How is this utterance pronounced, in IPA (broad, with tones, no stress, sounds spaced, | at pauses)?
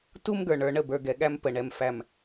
t u˦ m ɡ ə˞˨ ɳ ə˞˨ ɳ ə˦˨ b ə˞˨ ɡ ɛ˨ ɠ æ˦ m p ə˨ ɳ ɛ˨ m f æ˨ m